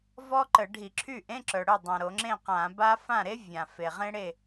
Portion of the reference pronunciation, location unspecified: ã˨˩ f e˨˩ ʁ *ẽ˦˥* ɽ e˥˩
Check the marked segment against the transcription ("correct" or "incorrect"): correct